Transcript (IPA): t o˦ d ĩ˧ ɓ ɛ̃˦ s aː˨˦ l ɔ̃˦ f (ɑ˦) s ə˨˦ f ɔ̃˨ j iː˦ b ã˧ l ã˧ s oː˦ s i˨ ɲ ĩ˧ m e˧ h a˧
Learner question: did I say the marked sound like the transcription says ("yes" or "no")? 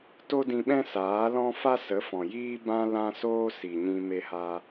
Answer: no